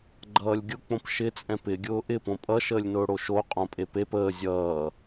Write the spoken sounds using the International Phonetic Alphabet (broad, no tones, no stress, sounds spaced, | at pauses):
ɡ͡ǃ ʌː lʲ ɡʲ ʊ k͡p õ p ʃ ɪ t͡sʼ ɛ̃ p ɪ ɡʲ ʊː ʔ ɪ p õ pʼ ʌ ʃ əː lʲ n ʊː ɽ o ʃ o qʼ õ pʼ e p e p əː zʲ ʌː